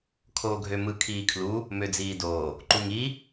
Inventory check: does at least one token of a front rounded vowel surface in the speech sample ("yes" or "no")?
yes